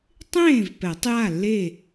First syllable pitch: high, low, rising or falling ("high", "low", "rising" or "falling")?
falling